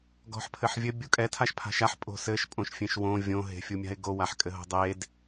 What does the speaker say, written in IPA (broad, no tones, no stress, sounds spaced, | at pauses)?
ɡ ɔ̤ ħ pʰ ɘ ħ vʲ ɘ bʲ u kʼ ɛ tʰ a ʃ pʰ a̤ ʃ a ħ pʼ o̤ s ɘ ʃ pʼ õ ʃ fʲ ẽ ʃ w õ vʲ õ ɦ e̤ fʲ u mʲ a̤ ɪ̯ ɡ o w a ħ kʼ ɘ ɦ o̤ dˤ e d